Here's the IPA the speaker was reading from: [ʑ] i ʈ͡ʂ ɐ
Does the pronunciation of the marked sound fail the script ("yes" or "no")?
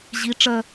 no